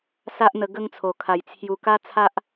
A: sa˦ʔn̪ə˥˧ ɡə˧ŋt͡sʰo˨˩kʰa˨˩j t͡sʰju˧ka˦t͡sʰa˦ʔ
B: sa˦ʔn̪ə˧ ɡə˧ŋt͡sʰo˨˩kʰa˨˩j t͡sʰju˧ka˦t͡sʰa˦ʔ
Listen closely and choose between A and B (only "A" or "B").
B